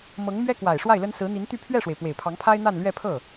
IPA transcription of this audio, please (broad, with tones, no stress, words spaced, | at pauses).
mɤ˧˥ŋ mɥɛ˥kwa˨˩ɪ̯ ʂwa˥˩ɪ̯lə˥n sɹ̩˧˥n̪i˧˥nt̪y˥˧ pʰɥɛ˥˩ʂwe˩ɪ̯ pwe˨˩ɪ̯pʰɑ˧˥ŋpʰa˥ɪ̯ n̪a˥˧nlɥɛ˥˧pʰɤ˥˩